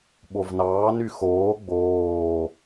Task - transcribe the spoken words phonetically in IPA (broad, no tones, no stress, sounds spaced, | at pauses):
ɓ o v n ɑː n y x oː ɡ͡b oː